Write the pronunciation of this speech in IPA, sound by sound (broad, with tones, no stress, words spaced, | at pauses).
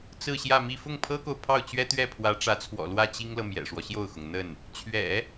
t͡sɹ̩˥˧ɕjä˥˧mi˥˧ fʊ˥˩ŋpʰɤ˥ko˨ʊ̯ pʰɑ˥˩ʊ̯t͡ɕɥɛ˥ t̪ɥɛ˥˩pʰwä˧˥ʈ͡ʂä˧˥t͡sʰwɔ̰˨˩ lwä˥˩t͡ɕi˥ŋlɤ˨ mjɛ̰˨˩ʂwɔ˦ɕjo˥˩ʊ̯xʊ˩ŋ n̪ə˥˩n | t͡ɕʰɥɛ̰˨˩˦